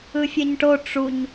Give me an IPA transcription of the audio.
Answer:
ɯ fʲ ɛ ɲ ʈ o ʈ͡ʂ u ɲ

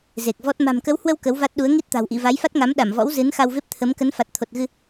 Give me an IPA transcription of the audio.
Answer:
z e˨˩ k̚ v ɔ˦˥ t̚ m a̤˨˩ m k ə˨˦ w h w ə˧ w k ə˨˦ w v a˦˥ t̚ ɗ u˨˦ ə̯ ŋ i˦˥ t̚ t̪ a̤˨˩ w ʔ ḭ˧˨ v a˨˦ j f a˦˥ t̚ ŋ a˨˦ m ɗ a˧˩ m v ɔ̰˧˥ w z ɨ˨˦ n x a˧ w v e˦˥ p̚ t̪ʰ ə˨˦ m k ə˨˦ n f a˨˩ t̚ t̪ʰ o˨˩ t̚ ɣ ɨ˧

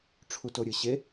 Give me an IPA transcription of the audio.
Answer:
ʈ͡ʂʰ u t o ɾʲ ɨ ɕ e

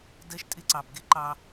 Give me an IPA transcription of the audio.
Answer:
d ɜ˦ ʃ tʼ ɪ˦ ǀ ɑ˨ b ɡ ɪ˦ ǃ ɑ˦

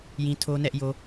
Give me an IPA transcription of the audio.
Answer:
j ĩ˦ tʰ o˦ n ɛ˦ ʔ j o˦

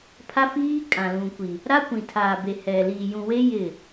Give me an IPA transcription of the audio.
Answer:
pʰ a˦ f iː˦ kʼ ã˨ l ũ˨ kʷ i˨ | ɾ a˦ kʷ ĩ˨ tʰ aː˨ b e˨ h ɛ˨ l iː˨ j ũ˨ w e˦ j ɪ˦˨

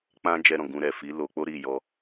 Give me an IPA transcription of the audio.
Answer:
k͡p ã˦ d͡ʒ ɛ˦ ɾ ɔ̃˦˨ ɡ ũ˧ ɾ ɛ˨ f i˨˦ l o˧ k͡p o˦ ɾ i˦˨ j ɔ˧

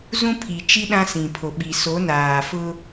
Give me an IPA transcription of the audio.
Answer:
z ũ˦ pʰ i˨ t͡ʃ i˦ ɗ ã˦ s ĩ˨ pʰ o˨ ɓ i˨ s o˨˦ n aː˨ f ʊ˦

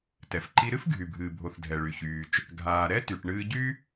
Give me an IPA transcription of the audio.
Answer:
t ɛ˩ f ǃ i˧ ɾ ɨ˥ f ɡʱ y˩ bʱ ɨː˩ bʱ o˩ θ dʱ ɛ˩ ɭ y˩ ç yː˩ t͡ʃ | ɡʱ aː˩ ɾ ɛ˥ t y˩ ʈ ɳ ɨː˧ ɟ y˥

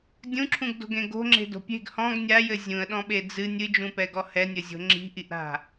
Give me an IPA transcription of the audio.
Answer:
dʲ ũ ǁʰ ũ ɡ d o̤ ɡ ẽ ɡ o̤ ŋ͡ǁ e̤ d o̤ pʲ e̤ ɡ h ɔ̃ ɡ nʲ a j ɘ zʲ ũ ə̯ ɗ ɔ̃ ɓ e d͡z ɨ nʲ ɨ d͡ʒ ũ p ɛ ɡ ɔ h ɛ nʲ ɘ zʲ o̤ ŋ͡ǁ i̤ ʔ i ʔ ɾ a̤

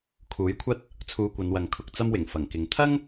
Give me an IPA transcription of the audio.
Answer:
kʰ uː˨˥ j kʷʰ ɐ˥ t̚ | t͡sʰ uː˧ kʷ ɐ˨˧ n w ɐ˨˧ ŋ kʰ ʊ˧ k̚ t͡s ɐ˥ m w ɪ˨˩ ŋ f ɐ˨˩ ŋ k ɪ˨ ŋ t̪ʰ ɐ˥ ŋ

